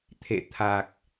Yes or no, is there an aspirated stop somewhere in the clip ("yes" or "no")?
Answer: yes